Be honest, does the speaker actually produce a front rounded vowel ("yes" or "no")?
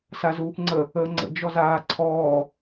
no